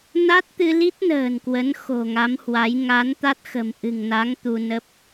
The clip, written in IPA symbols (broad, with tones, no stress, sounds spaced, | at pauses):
n a˦˥ t̚ t̪ ɨ˧ l i˦˥ t̚ n ə̤ː˨˩ n k w ə˨˦ n x o̤˨˩ ŋ a˨˦ m h w a˨˦ j ŋ a˨˦ n t̪ a˦˥ t̚ x ə̤˨˩ m ʔ ɨ̤˨˩ ŋ n a˨˦ ŋ t̪ u˧ n ə˦˥ p̚